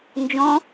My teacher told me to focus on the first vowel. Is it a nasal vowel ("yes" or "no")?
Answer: yes